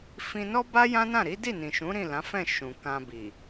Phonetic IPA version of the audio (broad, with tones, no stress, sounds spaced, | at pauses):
f ĩ˧ n ɔ˦ b a˦ j ã˦ n ã˦˨ ɾ i˨˦ d i˦˨ n ĩ˨ ʃ ũ˨˦ ɾ ĩ˦˨ l ã˨˦ f ɛ̃˦˨ ʃ ũ˨ k ã˧ b i˨